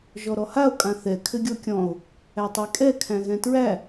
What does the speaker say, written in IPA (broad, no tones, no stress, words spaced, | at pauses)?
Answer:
ʒɔɾɔhao̯ kʼãθɛ kʰɘɡʲɔkʲɔ̃o̯ | ætˤɛkʼɛ kʰæ̃ɣɛ̃tɹæ